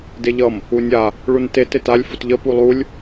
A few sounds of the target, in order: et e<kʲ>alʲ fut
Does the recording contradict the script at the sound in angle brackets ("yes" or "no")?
yes